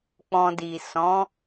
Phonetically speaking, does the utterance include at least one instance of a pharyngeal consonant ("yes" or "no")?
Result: no